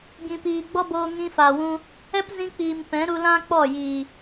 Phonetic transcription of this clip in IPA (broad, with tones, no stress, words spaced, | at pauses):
ɡĩ˨piː˨ɡ͡bɔ˦ boː˧ ŋĩ˧fa˨wũ˧ | ɛ˦pzĩ˧k͡piː˨m pɛ̃˨˦ɾu˧lã˦k͡pɔ˦˨ jiː˨